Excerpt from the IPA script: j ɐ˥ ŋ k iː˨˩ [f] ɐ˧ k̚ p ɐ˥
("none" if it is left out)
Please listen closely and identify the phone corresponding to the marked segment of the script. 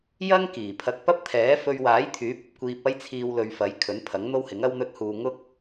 pʰ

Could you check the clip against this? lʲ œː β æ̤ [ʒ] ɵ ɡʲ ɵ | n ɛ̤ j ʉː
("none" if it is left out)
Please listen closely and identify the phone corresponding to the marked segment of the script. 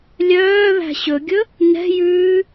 ɕ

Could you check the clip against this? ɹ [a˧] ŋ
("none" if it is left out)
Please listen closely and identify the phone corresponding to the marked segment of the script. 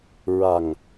a˨˩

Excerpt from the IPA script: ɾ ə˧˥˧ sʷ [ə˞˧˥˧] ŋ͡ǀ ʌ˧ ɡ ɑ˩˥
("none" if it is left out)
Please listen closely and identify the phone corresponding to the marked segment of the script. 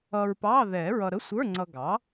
ə˞˧˥˧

